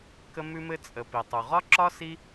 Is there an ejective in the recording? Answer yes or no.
yes